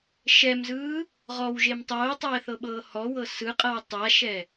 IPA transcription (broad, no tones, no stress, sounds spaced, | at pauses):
ʃ ɛ m z ɯː | ʁ ɔ w ʒ e m tˤ oː tˤ ɛː θ ɤ ɓ ɤː h ɔ w ɤ s ɯ qʼ ɤ w tˤ a ʃ ɛ